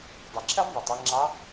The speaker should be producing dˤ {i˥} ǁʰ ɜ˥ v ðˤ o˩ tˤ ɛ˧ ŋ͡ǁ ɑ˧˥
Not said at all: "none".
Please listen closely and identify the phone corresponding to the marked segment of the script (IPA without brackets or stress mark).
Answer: i˩